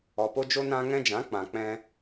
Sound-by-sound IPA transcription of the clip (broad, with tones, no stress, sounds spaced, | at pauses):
ɔ˧ p o˦ d͡ʒ o˦ n ã˦ ŋ ɛ̃˧ d͡ʒ ã˨˦ k͡p ã˧ k͡p ɛ̃˦